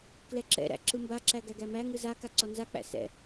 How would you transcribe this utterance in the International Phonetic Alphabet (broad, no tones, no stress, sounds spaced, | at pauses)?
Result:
k l ɛ ǁ ɛ̰ ɾ æ̰ ǁ ɯ m b a ǁ æ ɡ æ ɡ æ m æ ŋ ɯ z a k a ǀ ɔ n z a k͡p æ̰ s ɛ̰